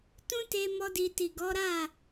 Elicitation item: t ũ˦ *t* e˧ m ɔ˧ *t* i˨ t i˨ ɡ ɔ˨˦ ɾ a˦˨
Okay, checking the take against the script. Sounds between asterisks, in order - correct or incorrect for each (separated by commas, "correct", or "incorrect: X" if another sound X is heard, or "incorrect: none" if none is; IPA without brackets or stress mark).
correct, incorrect: d